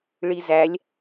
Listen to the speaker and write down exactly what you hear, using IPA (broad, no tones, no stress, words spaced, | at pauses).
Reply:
ɭizælʲ